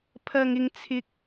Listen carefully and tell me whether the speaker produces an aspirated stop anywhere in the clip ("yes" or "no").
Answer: yes